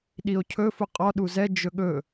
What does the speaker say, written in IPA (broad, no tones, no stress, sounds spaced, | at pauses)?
ɗ i o̯ cʰ ɵ f u qʼ ɔ ɗ u z ɛ d͡ʒ ɵ ɠ ɵ